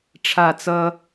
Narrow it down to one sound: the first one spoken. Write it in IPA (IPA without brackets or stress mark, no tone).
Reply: ʈ͡ʂʰ